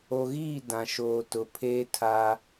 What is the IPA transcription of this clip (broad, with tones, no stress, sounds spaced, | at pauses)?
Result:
o˨ ɣ iː˦˨ d ã˨ ʃ oː˨ t ʊ˨˦ pʰ eː˦ tʰ aː˦